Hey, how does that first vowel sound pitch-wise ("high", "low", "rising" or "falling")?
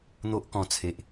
high